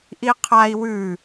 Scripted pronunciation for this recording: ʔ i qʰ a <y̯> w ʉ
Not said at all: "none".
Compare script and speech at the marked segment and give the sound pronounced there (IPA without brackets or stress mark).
i̯